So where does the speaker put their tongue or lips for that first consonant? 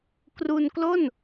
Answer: velum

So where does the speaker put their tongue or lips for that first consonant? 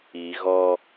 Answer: velum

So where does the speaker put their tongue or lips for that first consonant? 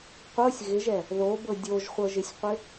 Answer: uvula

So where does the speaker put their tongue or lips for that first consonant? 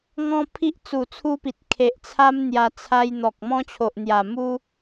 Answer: velum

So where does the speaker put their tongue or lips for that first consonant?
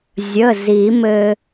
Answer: tongue tip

